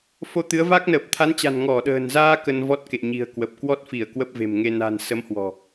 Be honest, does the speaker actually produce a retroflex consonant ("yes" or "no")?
no